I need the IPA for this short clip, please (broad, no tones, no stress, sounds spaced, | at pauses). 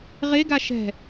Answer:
ʁ e ɡ a ʃ ɛ̤